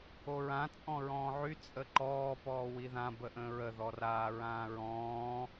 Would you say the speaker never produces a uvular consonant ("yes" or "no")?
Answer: yes